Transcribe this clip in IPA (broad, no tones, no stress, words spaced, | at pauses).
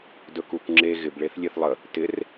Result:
dɵkukŋ͡ǁe ɣɪb ɭeθlʲeθlˠə | tɪr